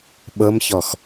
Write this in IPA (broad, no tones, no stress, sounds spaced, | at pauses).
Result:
ɓ ɤ m ç ɔ x